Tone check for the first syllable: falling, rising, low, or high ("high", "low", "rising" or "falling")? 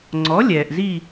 rising